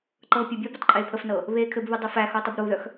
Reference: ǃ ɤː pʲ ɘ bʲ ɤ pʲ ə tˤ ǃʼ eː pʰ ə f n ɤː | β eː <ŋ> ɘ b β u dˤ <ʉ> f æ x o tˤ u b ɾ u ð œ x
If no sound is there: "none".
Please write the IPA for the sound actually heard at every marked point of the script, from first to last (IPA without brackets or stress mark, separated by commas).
kʰ, ɘ